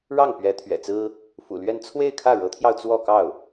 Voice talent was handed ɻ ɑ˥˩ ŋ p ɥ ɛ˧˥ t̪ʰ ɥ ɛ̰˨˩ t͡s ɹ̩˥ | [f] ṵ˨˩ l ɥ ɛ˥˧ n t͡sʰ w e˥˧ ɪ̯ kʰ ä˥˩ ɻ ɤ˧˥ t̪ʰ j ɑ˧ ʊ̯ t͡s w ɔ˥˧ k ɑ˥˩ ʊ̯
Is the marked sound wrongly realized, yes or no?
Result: no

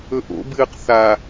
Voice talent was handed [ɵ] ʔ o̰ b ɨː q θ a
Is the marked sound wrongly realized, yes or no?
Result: no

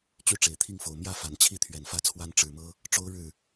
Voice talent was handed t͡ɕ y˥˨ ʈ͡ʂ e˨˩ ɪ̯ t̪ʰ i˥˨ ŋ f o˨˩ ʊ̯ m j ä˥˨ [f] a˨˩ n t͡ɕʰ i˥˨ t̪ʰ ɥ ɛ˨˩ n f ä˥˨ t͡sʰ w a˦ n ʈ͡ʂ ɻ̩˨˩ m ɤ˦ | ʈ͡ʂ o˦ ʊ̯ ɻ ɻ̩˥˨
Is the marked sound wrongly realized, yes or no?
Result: no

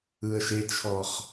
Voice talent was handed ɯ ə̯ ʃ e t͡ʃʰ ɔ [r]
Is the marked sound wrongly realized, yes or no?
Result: yes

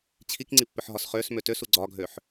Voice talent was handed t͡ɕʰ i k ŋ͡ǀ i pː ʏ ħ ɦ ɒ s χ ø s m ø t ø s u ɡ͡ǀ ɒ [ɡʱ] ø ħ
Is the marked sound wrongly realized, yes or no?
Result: no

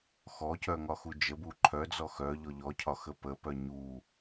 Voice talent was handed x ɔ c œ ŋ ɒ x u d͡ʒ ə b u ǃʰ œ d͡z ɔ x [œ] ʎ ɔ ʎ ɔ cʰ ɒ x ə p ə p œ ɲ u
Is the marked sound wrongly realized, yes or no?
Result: no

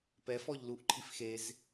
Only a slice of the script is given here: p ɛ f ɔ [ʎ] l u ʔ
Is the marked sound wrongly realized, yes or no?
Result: no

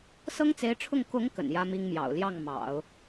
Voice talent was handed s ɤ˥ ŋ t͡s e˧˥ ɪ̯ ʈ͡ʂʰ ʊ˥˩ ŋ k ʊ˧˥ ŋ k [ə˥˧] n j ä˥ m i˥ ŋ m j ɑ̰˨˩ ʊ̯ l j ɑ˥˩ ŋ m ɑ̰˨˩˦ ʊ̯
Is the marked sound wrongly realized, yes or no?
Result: yes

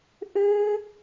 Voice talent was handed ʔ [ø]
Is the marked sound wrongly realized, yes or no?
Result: no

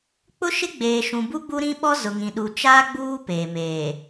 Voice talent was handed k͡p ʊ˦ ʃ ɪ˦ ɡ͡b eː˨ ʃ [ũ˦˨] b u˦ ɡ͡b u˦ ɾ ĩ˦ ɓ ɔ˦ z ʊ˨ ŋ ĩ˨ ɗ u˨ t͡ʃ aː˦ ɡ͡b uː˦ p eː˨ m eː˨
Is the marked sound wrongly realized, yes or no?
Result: yes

